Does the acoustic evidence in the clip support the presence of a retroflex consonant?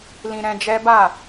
no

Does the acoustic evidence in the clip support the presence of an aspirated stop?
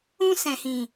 no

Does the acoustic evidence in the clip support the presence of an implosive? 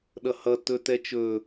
yes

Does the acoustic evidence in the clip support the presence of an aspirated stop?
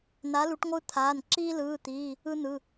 yes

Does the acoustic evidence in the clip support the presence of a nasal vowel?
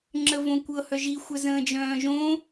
yes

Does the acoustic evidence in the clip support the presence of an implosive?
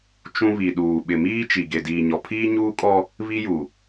yes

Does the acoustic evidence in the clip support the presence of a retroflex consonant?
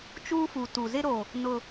no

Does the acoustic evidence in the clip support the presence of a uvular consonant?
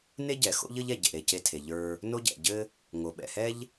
no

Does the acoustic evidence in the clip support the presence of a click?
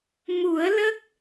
no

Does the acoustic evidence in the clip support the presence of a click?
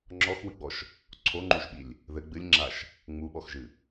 yes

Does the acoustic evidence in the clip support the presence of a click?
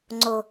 yes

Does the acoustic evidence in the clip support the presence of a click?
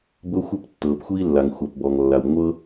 no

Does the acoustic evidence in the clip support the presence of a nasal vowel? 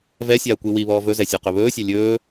no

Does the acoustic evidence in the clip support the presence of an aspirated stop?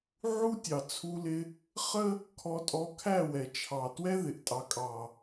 yes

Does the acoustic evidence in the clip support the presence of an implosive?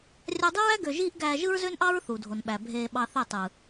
yes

